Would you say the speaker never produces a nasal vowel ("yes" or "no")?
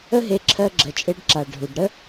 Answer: yes